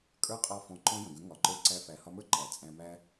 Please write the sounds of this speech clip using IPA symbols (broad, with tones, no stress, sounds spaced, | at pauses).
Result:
kʼ ə˞˦ qʼ ɒ˦ f ɔ̃˧ ǃ ɔ̃˦ j ə̃˨ ɡ ə̃˨˦ ŋ ɒ˨ ǃ ə˞˧ ǀ æ˧ f æ˨ h ɒ˧ m ə˞˦ ǃ æ˨ t͡sʼ æ̃˧ m æ˦